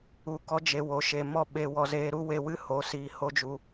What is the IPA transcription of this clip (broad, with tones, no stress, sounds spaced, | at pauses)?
u˧ k ɔ˦ d͡ʒ e˧ w o˨˦ ʃ e˨ m ɔ˦˨ ɓ e˧ w ɔ˧ z eː˧ ɾ u˦ w e˧ w ɨ˦ h o˨˦ s iː˧ h o˦ d͡ʒ u˧